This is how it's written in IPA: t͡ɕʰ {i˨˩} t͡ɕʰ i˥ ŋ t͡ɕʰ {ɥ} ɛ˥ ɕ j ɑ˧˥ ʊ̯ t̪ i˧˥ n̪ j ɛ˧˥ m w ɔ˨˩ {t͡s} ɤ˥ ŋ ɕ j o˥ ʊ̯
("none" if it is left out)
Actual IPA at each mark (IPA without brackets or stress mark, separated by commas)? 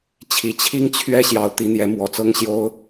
i˨˩, ɥ, t͡s